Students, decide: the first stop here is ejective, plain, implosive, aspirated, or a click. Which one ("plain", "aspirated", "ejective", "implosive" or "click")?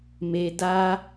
plain